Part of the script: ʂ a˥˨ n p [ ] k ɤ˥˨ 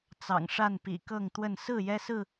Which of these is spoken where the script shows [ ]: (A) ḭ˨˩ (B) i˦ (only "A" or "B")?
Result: A